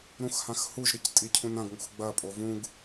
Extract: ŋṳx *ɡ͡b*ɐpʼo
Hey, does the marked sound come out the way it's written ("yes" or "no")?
yes